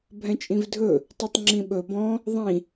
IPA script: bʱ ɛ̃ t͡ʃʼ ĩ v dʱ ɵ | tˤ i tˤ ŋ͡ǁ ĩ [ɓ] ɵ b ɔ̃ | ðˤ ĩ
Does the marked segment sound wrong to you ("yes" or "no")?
no